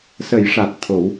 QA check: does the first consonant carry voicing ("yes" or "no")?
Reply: no